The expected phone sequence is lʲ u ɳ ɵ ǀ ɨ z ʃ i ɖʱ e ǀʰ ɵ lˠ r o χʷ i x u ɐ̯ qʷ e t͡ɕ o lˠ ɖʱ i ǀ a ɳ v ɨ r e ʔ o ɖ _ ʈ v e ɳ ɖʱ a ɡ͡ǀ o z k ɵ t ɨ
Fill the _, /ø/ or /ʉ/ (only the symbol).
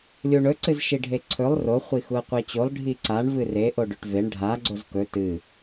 ʉ